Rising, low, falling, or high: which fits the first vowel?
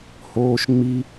high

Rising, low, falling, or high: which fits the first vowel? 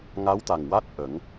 rising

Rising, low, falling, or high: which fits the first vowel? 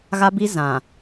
high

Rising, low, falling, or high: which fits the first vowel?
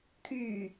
low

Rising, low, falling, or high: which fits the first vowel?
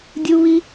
high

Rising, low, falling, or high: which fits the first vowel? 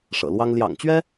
low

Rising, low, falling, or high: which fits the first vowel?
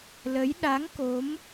rising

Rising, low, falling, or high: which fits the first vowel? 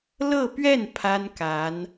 falling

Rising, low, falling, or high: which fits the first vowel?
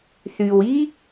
low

